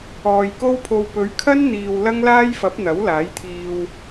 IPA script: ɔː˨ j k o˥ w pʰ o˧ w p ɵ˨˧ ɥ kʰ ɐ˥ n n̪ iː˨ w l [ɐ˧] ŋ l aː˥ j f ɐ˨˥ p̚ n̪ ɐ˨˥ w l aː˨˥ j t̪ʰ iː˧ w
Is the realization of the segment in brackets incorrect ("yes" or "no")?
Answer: yes